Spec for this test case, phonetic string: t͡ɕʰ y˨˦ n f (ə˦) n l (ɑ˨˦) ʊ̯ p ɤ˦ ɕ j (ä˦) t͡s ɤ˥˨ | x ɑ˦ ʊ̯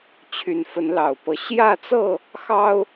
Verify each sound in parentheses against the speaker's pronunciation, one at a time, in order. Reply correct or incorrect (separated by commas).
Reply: incorrect, incorrect, incorrect